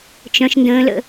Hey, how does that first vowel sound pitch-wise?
high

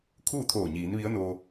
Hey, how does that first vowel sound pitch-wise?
falling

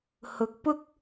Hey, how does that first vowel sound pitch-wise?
rising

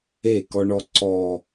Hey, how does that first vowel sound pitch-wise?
falling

